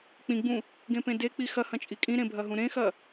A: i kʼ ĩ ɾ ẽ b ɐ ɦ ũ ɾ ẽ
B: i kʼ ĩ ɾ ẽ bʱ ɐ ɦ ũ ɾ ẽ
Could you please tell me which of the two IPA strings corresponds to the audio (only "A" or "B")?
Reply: B